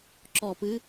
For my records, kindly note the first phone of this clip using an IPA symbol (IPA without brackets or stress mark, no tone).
ǁ